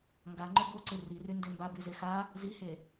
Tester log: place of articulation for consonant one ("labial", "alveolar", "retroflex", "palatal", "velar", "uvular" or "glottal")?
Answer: velar